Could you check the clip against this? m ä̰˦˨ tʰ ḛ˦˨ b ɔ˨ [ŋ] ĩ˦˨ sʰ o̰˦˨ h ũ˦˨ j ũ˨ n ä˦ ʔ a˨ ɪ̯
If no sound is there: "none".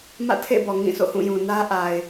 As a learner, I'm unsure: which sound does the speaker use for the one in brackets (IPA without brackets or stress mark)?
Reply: ŋ